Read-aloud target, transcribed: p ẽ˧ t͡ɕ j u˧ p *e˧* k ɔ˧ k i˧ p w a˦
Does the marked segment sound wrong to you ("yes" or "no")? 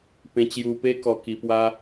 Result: yes